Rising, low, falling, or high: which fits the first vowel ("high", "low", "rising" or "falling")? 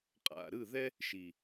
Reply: low